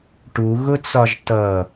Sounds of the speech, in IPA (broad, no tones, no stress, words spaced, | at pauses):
ʈuɣʊt͡sɒʒ tʌ